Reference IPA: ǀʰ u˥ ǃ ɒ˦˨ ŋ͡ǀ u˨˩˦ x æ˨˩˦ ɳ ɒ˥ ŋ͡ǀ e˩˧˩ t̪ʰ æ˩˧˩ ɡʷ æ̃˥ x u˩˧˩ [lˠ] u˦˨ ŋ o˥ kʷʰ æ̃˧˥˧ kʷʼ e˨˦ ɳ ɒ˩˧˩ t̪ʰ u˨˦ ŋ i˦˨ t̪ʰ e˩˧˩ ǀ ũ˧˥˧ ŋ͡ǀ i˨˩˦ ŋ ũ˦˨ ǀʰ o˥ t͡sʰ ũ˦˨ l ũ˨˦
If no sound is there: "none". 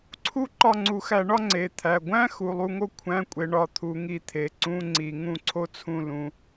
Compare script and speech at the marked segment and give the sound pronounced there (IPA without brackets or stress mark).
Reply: lˠ